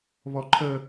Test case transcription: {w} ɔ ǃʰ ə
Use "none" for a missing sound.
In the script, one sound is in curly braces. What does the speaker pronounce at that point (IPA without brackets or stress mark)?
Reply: β